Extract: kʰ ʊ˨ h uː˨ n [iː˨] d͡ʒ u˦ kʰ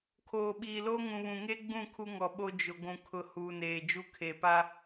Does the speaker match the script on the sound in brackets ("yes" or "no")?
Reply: no